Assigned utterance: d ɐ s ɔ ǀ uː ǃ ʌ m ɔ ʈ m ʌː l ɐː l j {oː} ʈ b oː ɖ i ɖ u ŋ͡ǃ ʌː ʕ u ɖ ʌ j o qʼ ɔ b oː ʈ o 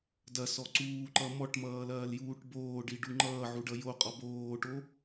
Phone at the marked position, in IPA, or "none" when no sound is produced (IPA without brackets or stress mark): uː